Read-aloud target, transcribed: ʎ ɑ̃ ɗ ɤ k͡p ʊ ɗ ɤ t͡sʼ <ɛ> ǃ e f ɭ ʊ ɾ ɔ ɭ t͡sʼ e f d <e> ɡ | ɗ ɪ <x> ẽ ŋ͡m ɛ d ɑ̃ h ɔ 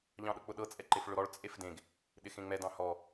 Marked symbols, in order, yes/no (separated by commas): yes, no, yes